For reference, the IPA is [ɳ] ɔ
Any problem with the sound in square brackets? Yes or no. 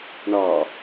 no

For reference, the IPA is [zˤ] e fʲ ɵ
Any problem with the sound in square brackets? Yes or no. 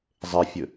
no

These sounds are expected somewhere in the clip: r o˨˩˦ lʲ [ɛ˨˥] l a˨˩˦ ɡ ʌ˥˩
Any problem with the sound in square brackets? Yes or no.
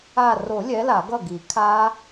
no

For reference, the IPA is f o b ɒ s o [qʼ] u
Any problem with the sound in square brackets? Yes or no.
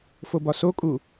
yes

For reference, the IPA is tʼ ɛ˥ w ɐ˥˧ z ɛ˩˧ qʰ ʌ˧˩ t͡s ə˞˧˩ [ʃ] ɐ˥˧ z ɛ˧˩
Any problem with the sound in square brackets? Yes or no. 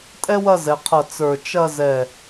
yes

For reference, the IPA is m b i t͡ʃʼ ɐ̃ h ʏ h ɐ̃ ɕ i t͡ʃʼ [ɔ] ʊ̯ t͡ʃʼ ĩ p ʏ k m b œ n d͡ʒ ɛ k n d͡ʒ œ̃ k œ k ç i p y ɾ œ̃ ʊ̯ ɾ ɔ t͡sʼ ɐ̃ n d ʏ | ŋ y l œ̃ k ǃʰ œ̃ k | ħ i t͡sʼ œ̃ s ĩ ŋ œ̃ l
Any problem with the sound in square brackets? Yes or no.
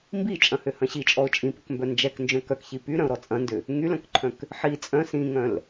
no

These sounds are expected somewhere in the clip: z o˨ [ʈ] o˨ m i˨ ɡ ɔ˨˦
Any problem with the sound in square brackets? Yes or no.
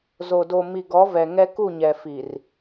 yes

